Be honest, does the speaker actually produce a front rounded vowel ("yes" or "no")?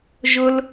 no